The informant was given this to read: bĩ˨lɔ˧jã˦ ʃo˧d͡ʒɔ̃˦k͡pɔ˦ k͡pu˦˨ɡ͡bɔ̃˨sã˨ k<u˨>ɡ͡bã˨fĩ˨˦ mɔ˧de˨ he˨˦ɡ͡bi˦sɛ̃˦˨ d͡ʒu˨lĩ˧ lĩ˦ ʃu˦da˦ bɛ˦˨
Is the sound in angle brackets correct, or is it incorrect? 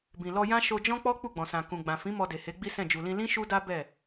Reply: incorrect